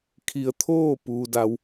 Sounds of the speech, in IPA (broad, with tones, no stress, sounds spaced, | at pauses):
kʰ i˩ ə̯ t̪ʰ oː˥˨ p uː˧ d a˧˥ w